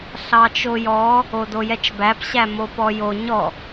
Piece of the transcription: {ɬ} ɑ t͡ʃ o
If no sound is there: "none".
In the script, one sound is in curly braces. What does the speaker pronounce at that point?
ɬ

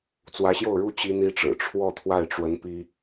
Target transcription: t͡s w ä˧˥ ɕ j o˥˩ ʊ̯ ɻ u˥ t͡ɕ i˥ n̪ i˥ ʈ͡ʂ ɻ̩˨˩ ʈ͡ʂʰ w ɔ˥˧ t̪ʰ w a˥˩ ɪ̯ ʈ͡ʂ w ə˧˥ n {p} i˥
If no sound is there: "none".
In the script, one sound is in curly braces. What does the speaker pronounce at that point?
p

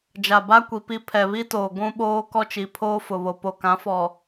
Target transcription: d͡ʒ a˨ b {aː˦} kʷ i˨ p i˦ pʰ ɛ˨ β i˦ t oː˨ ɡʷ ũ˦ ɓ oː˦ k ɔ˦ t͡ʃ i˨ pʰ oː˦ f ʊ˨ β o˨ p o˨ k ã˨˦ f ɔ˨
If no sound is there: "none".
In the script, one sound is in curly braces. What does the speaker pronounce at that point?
a˦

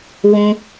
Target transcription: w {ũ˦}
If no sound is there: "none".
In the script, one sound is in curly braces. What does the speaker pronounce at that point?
ũ˦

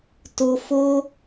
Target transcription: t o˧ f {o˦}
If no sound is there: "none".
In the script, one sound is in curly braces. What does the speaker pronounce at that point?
o˦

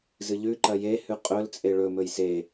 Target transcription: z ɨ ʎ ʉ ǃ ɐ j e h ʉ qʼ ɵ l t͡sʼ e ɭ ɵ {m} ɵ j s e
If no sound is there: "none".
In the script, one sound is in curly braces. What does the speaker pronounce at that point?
m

